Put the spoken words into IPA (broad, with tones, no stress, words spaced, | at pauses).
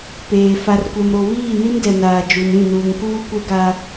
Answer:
peː˨ fa˨rkʷɛ˨mɾo˨ βiː˦˨ni˦mdɛ˨ naː˨d͡ʒu˨nĩ˦˨nuː˨ŋ kuː˦kʷɛ˦ɡa˦